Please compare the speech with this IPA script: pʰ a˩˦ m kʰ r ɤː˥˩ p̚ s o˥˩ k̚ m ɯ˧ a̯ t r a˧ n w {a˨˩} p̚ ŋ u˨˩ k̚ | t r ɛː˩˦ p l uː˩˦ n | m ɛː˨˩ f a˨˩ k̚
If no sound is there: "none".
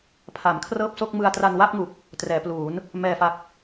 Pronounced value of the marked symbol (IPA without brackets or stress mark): a˥˩